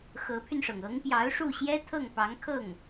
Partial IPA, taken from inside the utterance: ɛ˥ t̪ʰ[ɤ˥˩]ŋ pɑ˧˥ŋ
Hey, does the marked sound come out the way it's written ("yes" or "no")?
yes